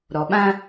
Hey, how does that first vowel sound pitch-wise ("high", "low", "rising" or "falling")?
low